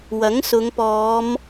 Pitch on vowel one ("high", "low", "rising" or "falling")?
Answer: rising